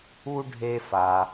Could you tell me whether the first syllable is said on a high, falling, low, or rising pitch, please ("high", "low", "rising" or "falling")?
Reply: high